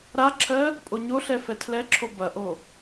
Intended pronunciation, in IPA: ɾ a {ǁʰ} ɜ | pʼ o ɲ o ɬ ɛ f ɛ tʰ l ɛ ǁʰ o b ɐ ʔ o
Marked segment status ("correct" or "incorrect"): correct